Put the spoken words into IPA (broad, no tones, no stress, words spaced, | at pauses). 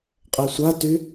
qʼɛsʷaty